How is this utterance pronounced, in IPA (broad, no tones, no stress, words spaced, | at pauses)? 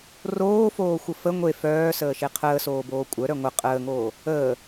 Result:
roːfoːxʷə fə ŋʷe fœːsəːʃe qʰəːsoːboː kʷʼœɾœ ŋʷə qʼəːŋoː | əː